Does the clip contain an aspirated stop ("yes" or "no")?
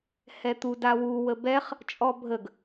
no